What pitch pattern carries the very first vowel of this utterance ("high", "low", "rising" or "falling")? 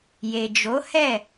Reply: low